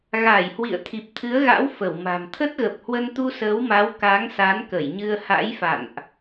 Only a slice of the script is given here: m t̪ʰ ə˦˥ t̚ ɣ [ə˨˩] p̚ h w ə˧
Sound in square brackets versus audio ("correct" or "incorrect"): correct